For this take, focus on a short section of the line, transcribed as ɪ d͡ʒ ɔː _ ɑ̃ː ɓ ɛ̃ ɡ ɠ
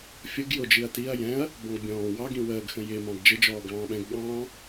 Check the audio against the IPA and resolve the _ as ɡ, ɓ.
ɡ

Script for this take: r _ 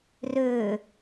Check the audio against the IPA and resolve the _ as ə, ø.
ø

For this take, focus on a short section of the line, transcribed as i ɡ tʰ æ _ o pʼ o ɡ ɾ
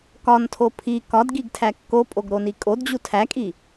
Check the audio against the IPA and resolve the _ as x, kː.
kː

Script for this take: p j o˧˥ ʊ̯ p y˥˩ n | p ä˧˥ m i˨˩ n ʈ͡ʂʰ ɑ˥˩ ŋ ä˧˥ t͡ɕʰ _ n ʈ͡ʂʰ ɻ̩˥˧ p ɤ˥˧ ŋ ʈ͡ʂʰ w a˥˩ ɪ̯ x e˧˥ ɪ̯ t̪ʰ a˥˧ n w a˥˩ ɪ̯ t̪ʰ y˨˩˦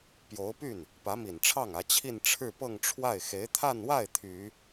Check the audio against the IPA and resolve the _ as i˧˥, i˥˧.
i˥˧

